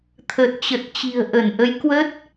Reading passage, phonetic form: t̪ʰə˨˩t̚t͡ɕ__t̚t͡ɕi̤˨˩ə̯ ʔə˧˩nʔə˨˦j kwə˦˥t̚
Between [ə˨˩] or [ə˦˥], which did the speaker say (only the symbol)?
ə˨˩